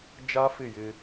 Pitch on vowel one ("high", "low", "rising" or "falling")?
high